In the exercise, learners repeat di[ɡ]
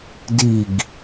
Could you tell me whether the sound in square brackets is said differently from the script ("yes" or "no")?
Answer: no